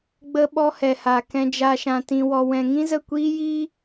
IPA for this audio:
ɡ͡b ə˦ ɓ ɔ˧ h ɛ˨ h a˨ k ɛ̃˧ d͡ʒ a˧ ʃ ã˧ t ĩ˧ w ɔ˧ w ɛ̃˧ ŋ ĩ˦ z ə˦˨ kʷ iː˦ j iː˦

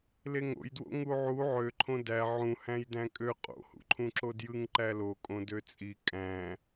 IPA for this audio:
l e ŋ o̰ j d w o̰ ŋ u ʕ u ʕ ø ǃʰ õ d æ ʕ ũ h æ̃ j d æ̃ kʼ ø qʼ o̰ h ṵ ǃʰ ũ ǁ o d j ɯ ŋ ǃ æ l o kʼ õ d ø t͡sʼ i kʼ æ̃

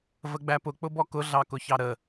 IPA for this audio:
v ə ɡ͡b æ p ʊ k͡p ʊ b ɔ k ʊ ɮ ɑ k ʊ ç ɑ ɾ ə

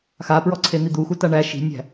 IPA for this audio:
x a p ɹ ɔ ǀʰ e n̪ i d̪ u x u t a ɳ æ ʃ i̤ nʲ æ̤

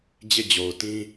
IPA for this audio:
d͡ʑ e˦˨ d͡ʑ o˨ ʊ̯ t ĩ˦

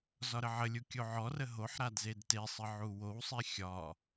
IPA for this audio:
z ɒ ɾ ə ʕ ə lʲ u kʲ o ʕ ɔ r ə ɦ o ħ ɾ a d z e d t e sˤ ə ʕ u w o w sˤ e xʲ ɒ

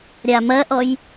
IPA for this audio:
ɾʲ a m ɐ ʔ ɔ j

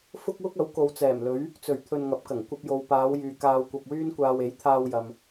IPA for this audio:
f ʊ˥ k̚ w ʊ˥ k̚ ɐ˨˥ w k o˨ w t͡s ɛː˨˩ m l ɵ˨˥ ɥ | t͡s ɵ˨˩ ɥ t̪ʰ ɵ˧ n ŋ ɐ˨˥ p̚ k ɐ˨˩ ŋ kʷ ɐ˧ p̚ j o˨ w p aː˨˧ w j yː˨ k aː˧ w kʷ ɐ˧ p̚ w yː˥ n kʷ aː˧ w e˨˥ j t̪ʰ aː˧ w j ɐ˨ m

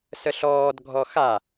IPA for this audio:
s ə ɬ ɔː d ɡʱ ɔ x a

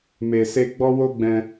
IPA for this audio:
m e˨ s e˧ ɡ͡b ɔ˦ w o˦ ɡ͡b ɛ̃˧

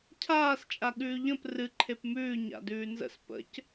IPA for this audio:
cʰ aː s t͡ʃʼ a ɠ ʉː ʎ ə̃ p r ɨ ǃʰ e p m ʉː ɲ a̰ d ʉː n z ə̰ s p ə̰ c

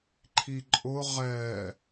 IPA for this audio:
ǃʰ i ǃʼ ʊ ʁ ɛ

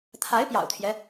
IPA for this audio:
t̪ʰ a˧˥ ɪ̯ p j ɑ̰˨˩ ʊ̯ t̪ʰ j ɛ˦

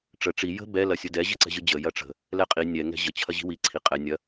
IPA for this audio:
ʈ͡ʂ ə ʈ͡ʂ i j ə̤ b ɛ l ɐ sʲ ə d ɛ ʑ ɨ ǀ ɛ̤ ʑ ɨ d͡ʑ ə j ɐ ʈ͡ʂ ə̤ | l ɛ qʼ i nʲ ɛ ŋ ɛ̤ ʑ ə t͡ɕʰ ɐ ʑ i̤ w i ǀʰ i qʼ ɛ nʲ ɐ

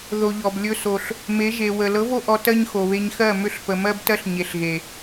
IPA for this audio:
ð o˧ ʎ ɔ˨ b lʲ ɵ˧ s o˨ ɬ | m e˨˦ ʒ e˨ w ə˨ l ɤ˨˦ v o˧ ʔ ɔ˨ t ɜ˦ ɲ x o˨ β e˧ ɲ x ɜ˦˨ m ʏ˦˨ ɬ p ə˨ m ɜ˦ b t ɜ˦ ɬ ɲ e˨ ɬ ɣ e˨

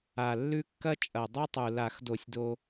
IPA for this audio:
a˨˩ lː ʉ˥˧ kː ɐ˥ t͡ʃʼ ɐ˨˩ dˤ ɵ˥ tˤ u˨˩ l a˧˩˧ x d o˧˩˧ sʲ d o˧

